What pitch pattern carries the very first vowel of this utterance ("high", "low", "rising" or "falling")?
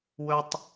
high